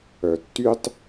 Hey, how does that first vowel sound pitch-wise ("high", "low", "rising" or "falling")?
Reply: low